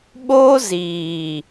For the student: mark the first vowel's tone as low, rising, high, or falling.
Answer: high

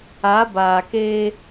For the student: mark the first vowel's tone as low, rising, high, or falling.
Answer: rising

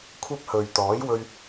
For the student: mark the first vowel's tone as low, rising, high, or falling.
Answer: high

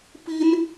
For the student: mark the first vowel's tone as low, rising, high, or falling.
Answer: high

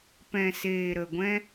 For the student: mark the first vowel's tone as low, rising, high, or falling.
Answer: low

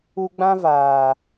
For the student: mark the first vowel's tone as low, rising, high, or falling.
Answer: high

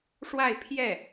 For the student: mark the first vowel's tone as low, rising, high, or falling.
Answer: falling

